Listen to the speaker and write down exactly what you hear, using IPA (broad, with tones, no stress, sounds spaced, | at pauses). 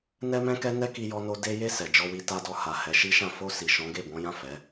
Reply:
n ɛ˦ m ɛ̃˦ k ɛ˦ n ɛ˦ k i˦ j ɔ˦ n o˦ d e˧ j e˧ s ɛ˨ d͡ʒ ɔ˧ w i˦ t a˧ d ɔ˧ h a˨ h ɛ˨˦ ʃ i˦ ʃ ã˦˨ f o˧ s i˨ ʃ ɔ̃˨˦ ɡ e˦˨ b ɔ̃˨˦ j ã˦˨ f ɛ˨˦